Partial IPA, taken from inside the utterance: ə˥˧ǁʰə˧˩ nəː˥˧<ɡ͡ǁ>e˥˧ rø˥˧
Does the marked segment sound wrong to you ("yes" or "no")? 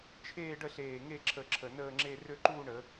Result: yes